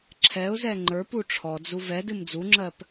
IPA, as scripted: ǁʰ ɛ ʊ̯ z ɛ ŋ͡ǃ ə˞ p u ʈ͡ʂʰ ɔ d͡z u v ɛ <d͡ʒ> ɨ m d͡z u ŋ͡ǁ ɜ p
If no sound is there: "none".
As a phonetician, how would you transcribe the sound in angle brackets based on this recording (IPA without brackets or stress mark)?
d